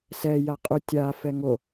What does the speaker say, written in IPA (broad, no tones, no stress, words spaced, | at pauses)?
sɛ jaqʼu tʲa fɛŋo